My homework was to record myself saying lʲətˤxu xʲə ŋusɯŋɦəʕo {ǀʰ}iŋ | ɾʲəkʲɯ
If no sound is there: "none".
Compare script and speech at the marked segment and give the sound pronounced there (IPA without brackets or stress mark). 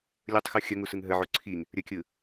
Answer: ǀʰ